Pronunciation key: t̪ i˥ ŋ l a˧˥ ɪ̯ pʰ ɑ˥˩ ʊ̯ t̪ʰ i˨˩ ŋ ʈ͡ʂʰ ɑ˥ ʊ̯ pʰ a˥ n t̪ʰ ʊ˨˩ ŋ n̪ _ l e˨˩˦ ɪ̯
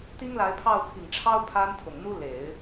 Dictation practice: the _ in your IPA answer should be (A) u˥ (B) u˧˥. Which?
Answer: A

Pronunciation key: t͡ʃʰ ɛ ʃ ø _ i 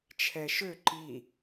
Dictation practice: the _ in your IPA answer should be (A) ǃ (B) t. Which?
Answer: A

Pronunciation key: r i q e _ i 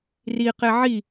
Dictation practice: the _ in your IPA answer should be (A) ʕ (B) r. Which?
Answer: A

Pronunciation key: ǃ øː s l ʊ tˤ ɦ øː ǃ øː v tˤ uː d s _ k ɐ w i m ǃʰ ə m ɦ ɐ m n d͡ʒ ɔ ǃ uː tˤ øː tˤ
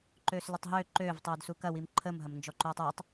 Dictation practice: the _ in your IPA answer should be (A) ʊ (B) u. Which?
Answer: B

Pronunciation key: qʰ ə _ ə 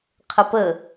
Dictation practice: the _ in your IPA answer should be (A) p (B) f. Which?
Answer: A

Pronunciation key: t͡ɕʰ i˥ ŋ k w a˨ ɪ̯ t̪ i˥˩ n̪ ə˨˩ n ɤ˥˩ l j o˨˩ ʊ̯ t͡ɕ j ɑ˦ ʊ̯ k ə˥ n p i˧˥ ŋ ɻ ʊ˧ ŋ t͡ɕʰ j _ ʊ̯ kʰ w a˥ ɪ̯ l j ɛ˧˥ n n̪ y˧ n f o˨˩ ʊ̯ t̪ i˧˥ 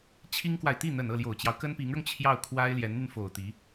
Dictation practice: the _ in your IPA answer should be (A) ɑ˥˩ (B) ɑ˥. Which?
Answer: A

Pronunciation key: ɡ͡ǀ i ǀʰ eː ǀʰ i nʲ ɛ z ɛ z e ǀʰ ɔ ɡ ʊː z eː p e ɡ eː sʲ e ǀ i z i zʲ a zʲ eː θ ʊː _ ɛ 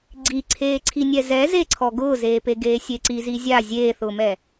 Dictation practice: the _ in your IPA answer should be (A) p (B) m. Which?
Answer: B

